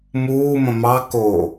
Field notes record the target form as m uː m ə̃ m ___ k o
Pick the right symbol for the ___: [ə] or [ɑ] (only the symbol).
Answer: ɑ